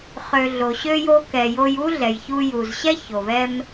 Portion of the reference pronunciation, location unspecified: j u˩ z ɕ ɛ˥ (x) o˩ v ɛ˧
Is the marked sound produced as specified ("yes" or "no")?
no